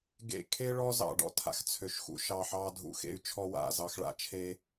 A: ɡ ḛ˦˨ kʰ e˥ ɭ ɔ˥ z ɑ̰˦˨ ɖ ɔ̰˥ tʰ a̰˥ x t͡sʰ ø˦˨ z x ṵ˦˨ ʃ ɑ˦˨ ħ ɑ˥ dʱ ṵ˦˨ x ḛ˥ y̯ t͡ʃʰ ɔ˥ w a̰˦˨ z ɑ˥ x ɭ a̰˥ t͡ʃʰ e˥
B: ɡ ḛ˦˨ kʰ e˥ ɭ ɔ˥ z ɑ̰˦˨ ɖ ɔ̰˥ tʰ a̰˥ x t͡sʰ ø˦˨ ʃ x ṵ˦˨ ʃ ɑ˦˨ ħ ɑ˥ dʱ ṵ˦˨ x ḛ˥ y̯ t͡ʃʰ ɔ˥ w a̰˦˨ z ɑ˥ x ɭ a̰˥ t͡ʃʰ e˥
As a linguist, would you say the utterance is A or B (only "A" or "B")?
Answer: B